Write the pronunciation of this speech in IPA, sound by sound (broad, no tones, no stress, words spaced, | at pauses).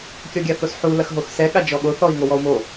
kʲɔɡʲaθosħu lɐxɦoxsɛ ɠad͡ʒɔɠo θɔi̯ŋowɔu̯mo